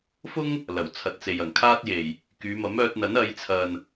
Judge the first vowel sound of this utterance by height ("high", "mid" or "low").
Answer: high